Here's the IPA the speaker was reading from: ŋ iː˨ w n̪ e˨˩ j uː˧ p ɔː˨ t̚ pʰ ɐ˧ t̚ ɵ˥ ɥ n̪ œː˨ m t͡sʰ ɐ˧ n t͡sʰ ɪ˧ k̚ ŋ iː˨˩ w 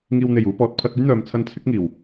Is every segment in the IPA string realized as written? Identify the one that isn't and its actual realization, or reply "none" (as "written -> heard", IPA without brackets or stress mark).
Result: ɪ˧ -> ɪ˨˥